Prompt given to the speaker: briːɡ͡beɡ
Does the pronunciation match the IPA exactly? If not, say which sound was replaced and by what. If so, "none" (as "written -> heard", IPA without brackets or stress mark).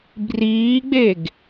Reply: none